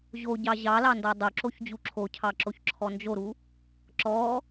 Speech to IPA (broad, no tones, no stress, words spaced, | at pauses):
ʑoɟɑ ʑɑlɑndɔ dˤoǁoçd͡ʑu ǁʰocʰɑǁoçǁʰɔ nd͡ʒoɾu | ǁɔ